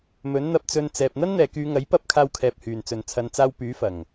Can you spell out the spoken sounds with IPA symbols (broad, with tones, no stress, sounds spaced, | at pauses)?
m ɵ˨˥ n n̪ ɐ˧ p̚ t͡s ɵ˧ n t͡s ɛː˨ p̚ n̪ ɐ˥ n n̪ ɛː˨ k yː˨˧ ŋ ɐ˨˥ j p ɐ˥ p̚ kʰ aː˧ w kʰ ɛː˨ p̚ h yː˨˩ n t͡s ɵ˨˩ n t͡sʰ ɐ˨ n t͡s aː˧ w p yː˨˥ f ɐ˨˩ ŋ